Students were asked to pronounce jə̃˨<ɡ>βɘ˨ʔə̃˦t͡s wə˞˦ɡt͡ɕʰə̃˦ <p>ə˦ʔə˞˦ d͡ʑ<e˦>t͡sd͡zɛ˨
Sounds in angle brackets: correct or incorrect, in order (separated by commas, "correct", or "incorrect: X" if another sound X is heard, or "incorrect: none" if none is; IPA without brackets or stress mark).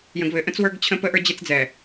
correct, correct, correct